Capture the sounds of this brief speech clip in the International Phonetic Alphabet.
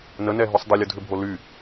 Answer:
n ə n ɛ ɦ y sˤ dˤ ə lʲ ʊ dʱ ʏ bʱ o l y

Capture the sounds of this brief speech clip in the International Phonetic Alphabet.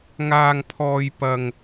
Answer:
ŋ aː˥ ŋ pʰ ɔː˥ j p ɐ˥ ŋ

